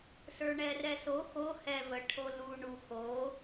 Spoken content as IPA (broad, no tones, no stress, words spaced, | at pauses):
sə˞ɳɛrɛso xo hɛ və ʈʰolu ɳuxo